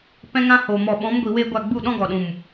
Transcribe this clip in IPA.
p ɛ̃˦ ŋ ã˦ h o˨ m ɔ˨ ɓ ɔ̃˨˦ m ɡʷ i˨ w eː˦ ɡʷ a˦˨ ɡ͡b u˦˨ ɗ ɔ̃˦ ɡ ɔ˨ ɗ ũ˨ m

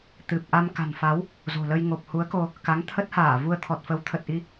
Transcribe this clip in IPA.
t̪ ɨ˨˩ p̚ ʔ a˧ m k a̤˨˩ n f a˨˦ w | z o̤˨˩ l ə˧ j ŋ o˨˩ p̚ h u˨˦ ə̯ k o˧ | k a˨˦ ŋ t̪ʰ ə˦˥ t̚ h aː˧˩ v u˧ ə̯ t̪ʰ ɔ˨˩ t̚ f ə˨˦ w t̪ʰ ə˨˩ t̚ ʔ i˧

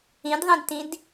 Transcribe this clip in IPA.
ĩ d ðˤ ĩ d t ĩ d

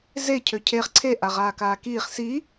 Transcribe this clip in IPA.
z e cʰ ø cʰ e χ ǀʰ e ʔ a ʁ aː k aː k iː χ s i

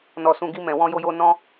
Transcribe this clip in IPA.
n ɔ˧ s ũ˧ ɡ i˦ m ɛ̃˧ w ɔ̃˦ j o˦ j o˦ n ɔ̃˦

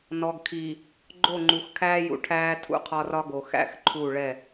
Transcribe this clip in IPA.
n ɔ˨ ɡ kʰ iː˨ | ɡ͡ǃ o˦˨ ŋ͡ǃ u˨ x kʰ æː˦ j ṵ˨ ʈʰ æː˦ tʰ ṵ˦ qʰ ɒ˦ r ɒ˦ ɡ o˨ x æ̰˦ x ǃʰ u˦˨ ɭ ɛ˦˨

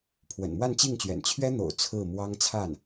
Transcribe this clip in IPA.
pʰ w ə̰˨˩ n m w a˥˧ n t͡ɕ i˥˩ ŋ t͡ɕ ɥ ɛ̰˨˩ n t͡ɕʰ ɥ ɛ˥ n̪ o̰˨˩ ʊ̯ t͡sʰ ɹ̩˥˩ m w ɑ˥ ŋ t͡sʰ a˥˩ n

